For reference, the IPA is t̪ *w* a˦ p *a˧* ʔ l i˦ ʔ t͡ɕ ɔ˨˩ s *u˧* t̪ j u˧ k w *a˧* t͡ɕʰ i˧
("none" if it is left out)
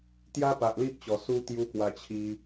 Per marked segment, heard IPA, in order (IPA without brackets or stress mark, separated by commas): j, a˨, u˧, a˧